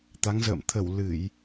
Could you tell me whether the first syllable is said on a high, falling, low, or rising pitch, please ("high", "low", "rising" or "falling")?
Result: rising